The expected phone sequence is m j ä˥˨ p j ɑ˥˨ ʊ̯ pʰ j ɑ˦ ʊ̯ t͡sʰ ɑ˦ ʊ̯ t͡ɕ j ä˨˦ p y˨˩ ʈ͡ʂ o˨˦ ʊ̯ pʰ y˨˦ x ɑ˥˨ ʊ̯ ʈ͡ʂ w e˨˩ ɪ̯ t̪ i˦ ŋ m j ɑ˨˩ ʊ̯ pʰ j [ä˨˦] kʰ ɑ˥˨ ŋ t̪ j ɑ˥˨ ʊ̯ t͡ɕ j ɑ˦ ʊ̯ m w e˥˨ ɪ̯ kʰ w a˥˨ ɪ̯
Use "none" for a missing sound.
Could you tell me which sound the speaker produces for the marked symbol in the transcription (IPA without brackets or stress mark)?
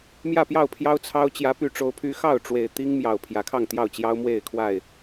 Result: ä˨˦